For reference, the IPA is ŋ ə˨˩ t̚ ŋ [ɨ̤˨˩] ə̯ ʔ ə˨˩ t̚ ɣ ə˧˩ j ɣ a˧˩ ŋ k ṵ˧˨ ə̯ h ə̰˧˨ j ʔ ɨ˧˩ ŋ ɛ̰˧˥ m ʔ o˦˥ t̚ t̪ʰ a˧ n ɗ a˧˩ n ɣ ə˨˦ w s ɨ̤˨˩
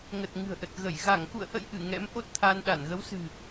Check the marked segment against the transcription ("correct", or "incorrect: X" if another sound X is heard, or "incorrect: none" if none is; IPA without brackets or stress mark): correct